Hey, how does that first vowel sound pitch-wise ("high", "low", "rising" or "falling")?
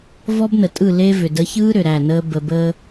high